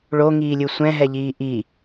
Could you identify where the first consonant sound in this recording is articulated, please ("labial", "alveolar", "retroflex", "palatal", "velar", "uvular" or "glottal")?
retroflex